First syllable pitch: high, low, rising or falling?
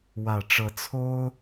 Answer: low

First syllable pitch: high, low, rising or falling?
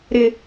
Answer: low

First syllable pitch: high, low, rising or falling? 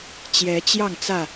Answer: rising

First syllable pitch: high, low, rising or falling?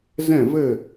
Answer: falling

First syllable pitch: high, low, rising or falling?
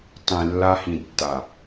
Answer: low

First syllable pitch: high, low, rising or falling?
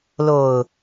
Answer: low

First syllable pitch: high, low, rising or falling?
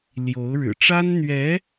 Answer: rising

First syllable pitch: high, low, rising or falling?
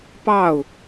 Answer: falling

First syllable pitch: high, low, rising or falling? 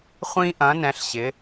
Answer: high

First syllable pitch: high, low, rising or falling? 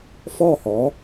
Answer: falling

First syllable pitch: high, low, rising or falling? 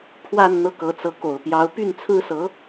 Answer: falling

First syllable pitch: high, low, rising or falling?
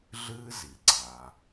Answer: high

